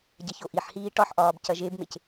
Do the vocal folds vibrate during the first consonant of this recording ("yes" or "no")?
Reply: yes